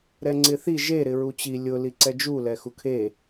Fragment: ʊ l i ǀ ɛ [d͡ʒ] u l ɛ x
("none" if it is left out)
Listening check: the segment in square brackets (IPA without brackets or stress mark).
d͡ʒ